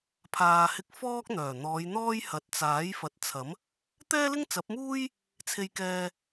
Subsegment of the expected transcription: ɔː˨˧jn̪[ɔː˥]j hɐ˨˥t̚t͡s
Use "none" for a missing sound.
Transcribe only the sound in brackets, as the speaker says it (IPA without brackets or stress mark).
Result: ɔː˥